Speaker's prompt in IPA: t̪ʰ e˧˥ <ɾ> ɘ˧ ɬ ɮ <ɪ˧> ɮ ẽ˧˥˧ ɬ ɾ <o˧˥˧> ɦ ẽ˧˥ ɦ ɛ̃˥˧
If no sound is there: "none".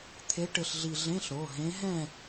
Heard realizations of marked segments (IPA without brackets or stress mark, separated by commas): ʈ, i˧, o˧˥˧